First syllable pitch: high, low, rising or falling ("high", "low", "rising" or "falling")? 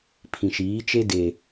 low